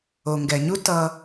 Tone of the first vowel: low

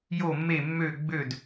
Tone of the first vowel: falling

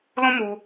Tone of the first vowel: high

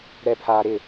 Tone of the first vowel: low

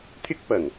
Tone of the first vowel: high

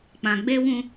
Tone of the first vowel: low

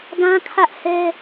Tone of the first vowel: high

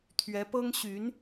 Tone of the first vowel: rising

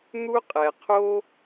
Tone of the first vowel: high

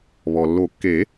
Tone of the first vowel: low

